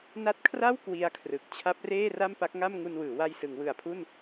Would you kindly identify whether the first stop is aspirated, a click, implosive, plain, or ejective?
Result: plain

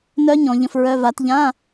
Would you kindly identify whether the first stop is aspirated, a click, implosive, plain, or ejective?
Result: plain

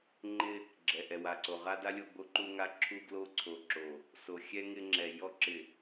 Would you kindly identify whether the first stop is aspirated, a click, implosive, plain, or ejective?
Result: click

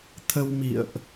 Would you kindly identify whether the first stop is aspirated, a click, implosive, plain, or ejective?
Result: aspirated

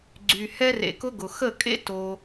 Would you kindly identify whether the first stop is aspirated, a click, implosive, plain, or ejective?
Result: click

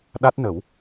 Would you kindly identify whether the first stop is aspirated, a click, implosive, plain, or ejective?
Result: implosive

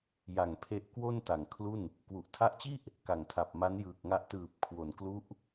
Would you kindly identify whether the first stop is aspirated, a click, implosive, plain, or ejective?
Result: aspirated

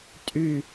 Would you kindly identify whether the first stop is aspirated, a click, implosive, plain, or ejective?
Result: ejective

